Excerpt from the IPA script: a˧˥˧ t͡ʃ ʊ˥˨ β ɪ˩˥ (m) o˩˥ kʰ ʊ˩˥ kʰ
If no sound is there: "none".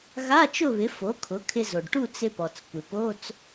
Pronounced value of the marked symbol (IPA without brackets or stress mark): f